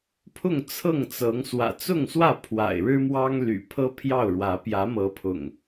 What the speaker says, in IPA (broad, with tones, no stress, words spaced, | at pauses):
pʰʊ˥˨ŋt͡sʰɤ˥˨ŋt͡sɤ˨˦ŋ swä̰˨˩ t͡sʊ˥˨ŋswä˥˨ pʰwa̰˨˩ɪ̯ɻɻ̩˦mwɑ˦ŋ ly̰˨˩pʰɤ˦ pʰjɑ˥˨ʊ̯ɻwä˨˦ pjä˨˦mɤ˨˦pʰʊ̰˨˩ŋ